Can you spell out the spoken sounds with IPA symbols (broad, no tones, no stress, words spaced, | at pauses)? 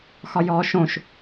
xɒjɔːʃõʃ